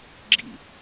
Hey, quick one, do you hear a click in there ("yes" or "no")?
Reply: yes